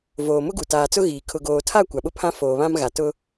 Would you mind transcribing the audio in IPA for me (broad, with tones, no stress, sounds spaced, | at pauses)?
v oː˨ m ʊ˦ ɡ u˨ t aː˨ t͡s ʊ˦ ɣ iː˨ kʰ ʊ˨ ɡ oː˨ tʰ a˦˨ kʷ a˨ ɓ ʊ˦ pʰ ã˦ f oː˨ β ã˦ m ɣ a˨ t ʊ˦